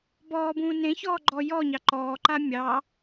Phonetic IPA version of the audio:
b ɔː b ũː n ẽ ç ɔː ɡ͡ǃ ɔ j ɔ ɲ ɑ ǃ ɔː ǃ a mʲ ɑ

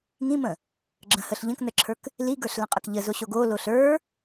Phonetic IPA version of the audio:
ŋ ĩ m ə̃ | ɡ͡ǁ ə̃ h ə ɬ ʎ ə̃ k n ə ǁʰ ə˞ k | l i ɡ ə˞ ɬ l ə̃ qʼ ə k ʎ ə z o ɕ o ɡ o l o ɬ ə˞

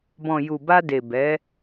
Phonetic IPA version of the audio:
b ɔ̃˨ j u˨ b a˧ d e˨ b ɛ˨˦

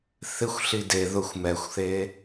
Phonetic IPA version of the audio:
θ ɪ xʷ ɬ i d e ð ʊ xʷ m ɛ xʷ θ e

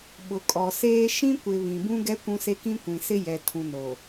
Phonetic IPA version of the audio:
ɓ ʊ˨ kʼ ɔ˨ s eː˦ ʃ ĩ˦ kʷ ɪ˨ β ĩ˨ b ũ˦ ɡ ɛ˦ kʷ ũ˦ s e˦ k ĩ˦ kʷ ĩ˨ s ɪ˦ j ɛ˨ tʰ ũ˨ n o˨

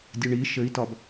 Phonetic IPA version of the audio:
dʲ ə ɳ i ʃ ɘ i̯ t ɒ b

